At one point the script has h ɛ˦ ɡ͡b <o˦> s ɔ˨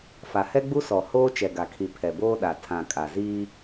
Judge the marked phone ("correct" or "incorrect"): incorrect